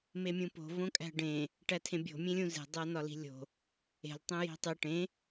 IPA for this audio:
memʲũpo̤ võkʼæ̤ɖẽ | ʈætʰẽbʲo̤ mʲẽlʲũze̤ dˤænɒli̤lʲo̤ | e̤l tˤẽji̤tˤe ʈẽ

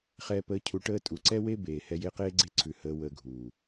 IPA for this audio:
χɛː˨pəː˨ cʰu˨ʈəː˦tʼu˨ ǀɛ˦we˦ beː˨ hɛ˦je˦ qeː˦ɡ͡ǀe˦˨ǀʰʉ˨ həː˨wəː˨ɡʱuː˨

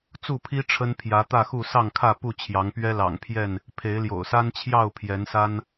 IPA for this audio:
t͡su˥˨pʰi˦ ʈ͡ʂʰə˦npʰjä˨˦t̪ä˥˨xu˥˨ sɑ˥˨ŋkʰä˥˨ pu˥˨t͡ɕʰjɑ˨˦ŋpɥɛ˦ lɑ̰˨˩ŋpʰjɛ˥˨n | pʰe˨˦ɪ̯ljo̰˨˩ʊ̯sa˦n t͡ɕʰjɑ˥˨ʊ̯pʰjɛ˨˦nsa˦n

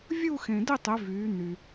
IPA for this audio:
vʲu˥˧xẽ˨dɪ˥˧tˤɪ˨˦ vyː˨˦n̪y˨

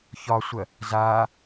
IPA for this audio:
çɒsʷɜ | zaː

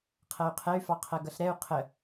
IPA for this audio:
qʰɜy̯qʰɛy̯fɑqʰɜ ɡʌɬɾɛu̯ qʰə

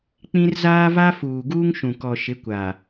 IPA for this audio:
k͡pĩ˦r zaː˦va˦ fuː˨ ɡuː˦ŋʃũ˨ kɔ˨ ʃɪ˨˦kʷa˨

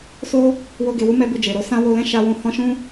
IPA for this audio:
so˧ | wo˧ ɡe˨wu˧ mɛ˦bu˧ d͡ʒe˨ɾo˨˦ sã˦ wo˧lɛ̃˦ ʃa˧wũ˧ hɔ̃˦ʃũ˦

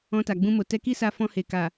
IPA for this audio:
ɔ̃˧ta˨ɡ͡bũ˧mo˨ tɛ˧ki˦sa˧ fɔ̃˧he˨ ka˨

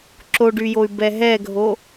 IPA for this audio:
ǁoɖyjoy̯ bɛɦɛɡʱo

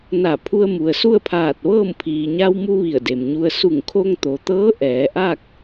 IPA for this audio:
na˧˩pʰu˧ə̯ mu˩ə̯su˥˨ə̯pʰaː˧˩t̚ʋɤː˥˨m pʰiː˩ɲa˧wmu˧ ʋi˧˩ə̯de˩mɲu˧ə̯ su˧˩ŋkʰo˧ŋt̪o˩t̪ɤː˧˥ ʔɛː˩˧ʔa˥˨k̚

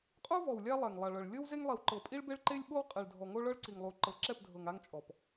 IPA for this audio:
qʼu˦vɔ˨w lʲa˦lˠɛ˨ŋ lˠa˨ɭɤ˨ɭ lʲɤ˦w ze˦ŋlˠi˨wǃɤ˨ pʼi˦ɭbe˦ɭǃe˦lʲ ɓo˦w qʼe˨ɭdʱɔ˨ ŋo˦ɭɤ˦ɭǀi˨ŋlˠu˨ ǃɤ˨ǁɛ˦˨pdʱɤ˨ŋ a˦ŋt͡ʃʼɔ˨p

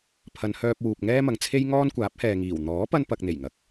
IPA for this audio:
pʰɐ˨˧nhœː˧p̚wuː˨p̚ ŋɛː˥mɐ˨ŋt͡sʰe˥j ŋɔː˥nkʷaː˨˥p̚hɛː˨ŋiː˨˩w n̪ɔː˨˥pɐ˧npɐ˨k̚ n̪e˨˩jŋɐ˨˥k̚

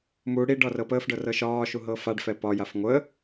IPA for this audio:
mu ɽiɖɒ rɤpəːfɖɤ rɤʃɒːʃu ɦɤfaɖfɛ pɒjaf ŋʷə

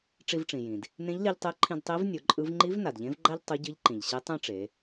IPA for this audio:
ʈ͡ʂi˧vʈ͡ʂĩ˩jĩ˩d | nẽ˧˥ʎli˧ʎtˤe˧˥ǃʰĩ˧d tˤi˧˥v nʲo˩˧ǃʼɯ˧˥v ŋ͡ǃi˧˥v na˩dʎẽ˧˥vɡ͡ǃa˥ʎ tˤo˧˥ɟɯ˧˥ʎǃĩ˩ʎɕi˧˥ tˤẽ˥ʈ͡ʂe˩˧

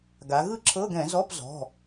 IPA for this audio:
ɡa˩˧ ɣɯ˥˩ǁʰɤ˧˥˧ɡɛ̃˧˩˧ zɔ˧˥˧pzɔ̤˩˧˩

